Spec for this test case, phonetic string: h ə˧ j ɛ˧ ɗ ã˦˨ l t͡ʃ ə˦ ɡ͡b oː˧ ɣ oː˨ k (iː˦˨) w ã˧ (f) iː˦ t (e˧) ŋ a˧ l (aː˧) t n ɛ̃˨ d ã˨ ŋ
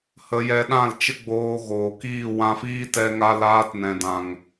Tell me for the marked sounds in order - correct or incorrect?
correct, correct, incorrect, correct

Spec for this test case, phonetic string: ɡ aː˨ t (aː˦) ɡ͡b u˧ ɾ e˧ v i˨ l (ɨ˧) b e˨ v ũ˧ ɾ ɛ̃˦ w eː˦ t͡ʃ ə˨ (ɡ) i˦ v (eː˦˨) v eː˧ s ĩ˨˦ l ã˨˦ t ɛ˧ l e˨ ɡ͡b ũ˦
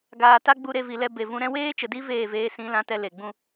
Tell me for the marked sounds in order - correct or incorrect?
incorrect, incorrect, incorrect, correct

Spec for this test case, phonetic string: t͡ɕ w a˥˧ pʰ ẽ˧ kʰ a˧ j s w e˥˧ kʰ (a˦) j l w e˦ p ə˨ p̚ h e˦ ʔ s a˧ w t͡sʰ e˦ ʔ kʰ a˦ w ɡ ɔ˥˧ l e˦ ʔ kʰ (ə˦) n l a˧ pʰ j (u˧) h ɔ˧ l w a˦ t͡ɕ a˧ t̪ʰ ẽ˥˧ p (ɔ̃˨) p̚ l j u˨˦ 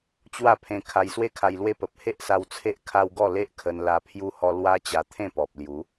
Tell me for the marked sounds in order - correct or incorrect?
incorrect, incorrect, incorrect, incorrect

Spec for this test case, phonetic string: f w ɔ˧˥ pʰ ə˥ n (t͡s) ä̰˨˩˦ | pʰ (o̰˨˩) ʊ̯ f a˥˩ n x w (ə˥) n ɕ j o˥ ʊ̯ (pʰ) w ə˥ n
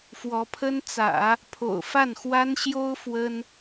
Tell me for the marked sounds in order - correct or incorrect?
correct, correct, incorrect, incorrect

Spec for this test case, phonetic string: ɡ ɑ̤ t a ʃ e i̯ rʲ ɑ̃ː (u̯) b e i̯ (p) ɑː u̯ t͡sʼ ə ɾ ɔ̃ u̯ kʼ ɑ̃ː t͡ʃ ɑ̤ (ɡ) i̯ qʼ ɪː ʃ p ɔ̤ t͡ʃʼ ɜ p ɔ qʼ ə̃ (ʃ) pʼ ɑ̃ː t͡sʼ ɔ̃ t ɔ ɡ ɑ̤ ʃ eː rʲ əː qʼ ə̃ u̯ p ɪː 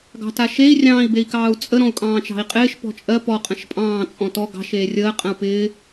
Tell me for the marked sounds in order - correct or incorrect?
incorrect, incorrect, incorrect, correct

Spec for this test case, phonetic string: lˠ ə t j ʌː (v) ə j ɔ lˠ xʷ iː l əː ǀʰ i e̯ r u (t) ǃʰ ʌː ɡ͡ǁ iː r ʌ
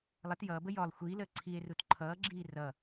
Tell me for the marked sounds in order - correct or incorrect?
incorrect, correct

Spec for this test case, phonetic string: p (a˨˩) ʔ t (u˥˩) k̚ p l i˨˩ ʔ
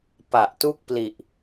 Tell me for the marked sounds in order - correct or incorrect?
correct, correct

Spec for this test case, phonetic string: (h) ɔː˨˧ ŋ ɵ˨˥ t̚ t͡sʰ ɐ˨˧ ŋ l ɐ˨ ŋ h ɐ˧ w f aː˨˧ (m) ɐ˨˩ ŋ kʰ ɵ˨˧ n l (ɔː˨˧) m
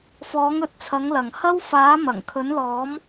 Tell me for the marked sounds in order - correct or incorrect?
incorrect, correct, correct

